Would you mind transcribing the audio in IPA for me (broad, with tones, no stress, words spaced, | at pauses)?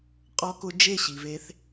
qʼɔ˧kʊ˧ d͡ʒe˦˨ɕi˨ve˧θ